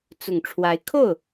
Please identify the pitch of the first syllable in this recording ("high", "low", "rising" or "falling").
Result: low